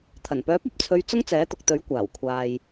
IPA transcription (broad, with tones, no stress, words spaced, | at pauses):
t̪ʰɐ˨˩npœː˨˥p̚ɐ˨p̚t͡sʰɵ˨˧ɥ t͡sʊ˥ŋt͡sɛː˨˥t̪ʊ˨k̚t̪ɵ˨˥ɥ kʷaː˨˩wkʷʰaː˨j